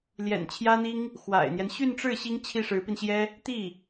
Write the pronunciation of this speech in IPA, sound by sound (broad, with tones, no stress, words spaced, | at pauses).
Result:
ljɛ̰˨˩nt͡ɕʰjä˥n̪i˥ŋ | xwa̰˨˩ɪ̯n̪jɛ˦n ɕy˥˧nʈ͡ʂɻ̩˥˩ ɕi˥ŋ t͡ɕʰi˥˩ʂɻ̩˧˥pi˧nɕjɛ˥ | t̪i˥˩